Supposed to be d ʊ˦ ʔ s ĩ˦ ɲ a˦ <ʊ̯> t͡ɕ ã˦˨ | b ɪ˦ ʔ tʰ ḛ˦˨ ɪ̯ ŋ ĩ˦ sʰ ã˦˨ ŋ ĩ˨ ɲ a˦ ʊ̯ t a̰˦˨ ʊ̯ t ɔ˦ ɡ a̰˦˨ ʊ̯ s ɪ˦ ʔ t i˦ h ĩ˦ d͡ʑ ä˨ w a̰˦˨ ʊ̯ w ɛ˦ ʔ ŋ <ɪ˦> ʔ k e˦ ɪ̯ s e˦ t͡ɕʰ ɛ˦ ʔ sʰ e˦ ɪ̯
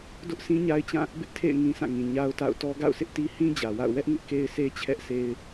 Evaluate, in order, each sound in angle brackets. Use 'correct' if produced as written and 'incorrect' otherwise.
incorrect: ɪ̯, correct

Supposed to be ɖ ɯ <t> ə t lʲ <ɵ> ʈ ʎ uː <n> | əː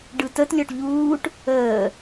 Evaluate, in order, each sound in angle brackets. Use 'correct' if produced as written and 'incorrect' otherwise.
correct, incorrect: ɔ, incorrect: ʈ

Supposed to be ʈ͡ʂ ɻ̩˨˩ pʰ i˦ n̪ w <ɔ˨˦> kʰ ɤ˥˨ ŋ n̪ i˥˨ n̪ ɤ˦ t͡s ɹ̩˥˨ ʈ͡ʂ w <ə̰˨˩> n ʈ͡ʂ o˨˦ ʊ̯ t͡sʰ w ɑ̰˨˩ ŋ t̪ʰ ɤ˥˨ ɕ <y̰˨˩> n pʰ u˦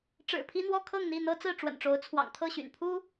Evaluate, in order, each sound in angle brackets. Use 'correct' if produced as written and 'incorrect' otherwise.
incorrect: ɔ˥˨, correct, correct

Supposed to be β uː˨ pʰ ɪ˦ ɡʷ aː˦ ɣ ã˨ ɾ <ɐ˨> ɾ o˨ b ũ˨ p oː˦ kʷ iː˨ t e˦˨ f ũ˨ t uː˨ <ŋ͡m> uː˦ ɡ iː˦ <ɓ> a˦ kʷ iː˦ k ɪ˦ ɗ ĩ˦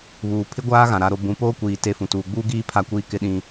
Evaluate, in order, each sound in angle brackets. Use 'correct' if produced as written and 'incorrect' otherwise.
incorrect: a˨, incorrect: ɡ͡b, incorrect: pʰ

